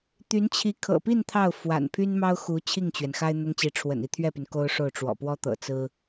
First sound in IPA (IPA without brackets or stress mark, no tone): t̪